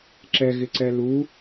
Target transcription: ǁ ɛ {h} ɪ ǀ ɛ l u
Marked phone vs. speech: incorrect: ɣ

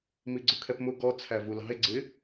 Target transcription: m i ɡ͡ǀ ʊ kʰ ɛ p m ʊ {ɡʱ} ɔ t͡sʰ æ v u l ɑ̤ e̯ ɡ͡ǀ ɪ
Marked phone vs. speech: incorrect: ɡ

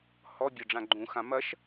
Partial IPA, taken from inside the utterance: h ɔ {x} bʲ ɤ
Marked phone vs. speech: incorrect: none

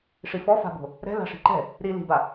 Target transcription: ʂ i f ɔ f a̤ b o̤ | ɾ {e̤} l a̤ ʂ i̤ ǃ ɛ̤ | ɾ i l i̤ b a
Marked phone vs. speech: incorrect: ɛ̤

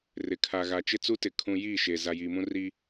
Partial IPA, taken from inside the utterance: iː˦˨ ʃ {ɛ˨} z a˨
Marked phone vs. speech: incorrect: e˨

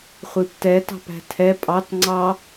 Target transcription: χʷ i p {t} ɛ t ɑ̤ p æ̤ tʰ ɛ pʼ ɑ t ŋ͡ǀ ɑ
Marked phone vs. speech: correct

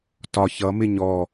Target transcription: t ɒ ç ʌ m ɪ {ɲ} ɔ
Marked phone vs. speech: correct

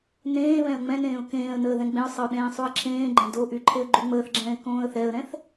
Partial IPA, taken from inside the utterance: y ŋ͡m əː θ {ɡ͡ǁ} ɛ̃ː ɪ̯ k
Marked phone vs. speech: correct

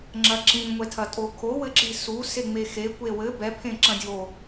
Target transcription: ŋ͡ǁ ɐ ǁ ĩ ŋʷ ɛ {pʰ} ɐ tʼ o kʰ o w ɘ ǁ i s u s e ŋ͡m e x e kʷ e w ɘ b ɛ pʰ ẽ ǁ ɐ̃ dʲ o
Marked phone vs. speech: incorrect: tʰ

